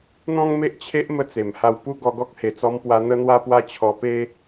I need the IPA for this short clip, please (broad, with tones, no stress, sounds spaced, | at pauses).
n̪ ɔ̃˦ ŋ m e˦ ʔ t͡ɕʰ e˦ ʔ m ə˧ t͡s e˨˩ m h a˧ w p u˦ ɡ ɔ˧ ɡ ɔ˦ k̚ h e˨˩ t͡s ɔ˧ m p w a˧ n̪ ə˦ n̪ w a˦ p w a˦ t͡ɕʰ ɔ˧ p e˦